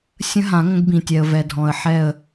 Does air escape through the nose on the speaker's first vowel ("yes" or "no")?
yes